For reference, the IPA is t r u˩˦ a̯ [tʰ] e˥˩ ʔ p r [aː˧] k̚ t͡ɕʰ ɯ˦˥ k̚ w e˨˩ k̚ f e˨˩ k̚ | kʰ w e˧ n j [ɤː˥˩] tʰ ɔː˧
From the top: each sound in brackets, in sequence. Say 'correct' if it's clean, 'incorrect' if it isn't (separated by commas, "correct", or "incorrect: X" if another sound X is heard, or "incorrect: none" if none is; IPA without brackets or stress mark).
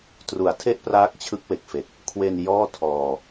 correct, incorrect: aː˦˥, incorrect: ɔː˥˩